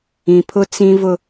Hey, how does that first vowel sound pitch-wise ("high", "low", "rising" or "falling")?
low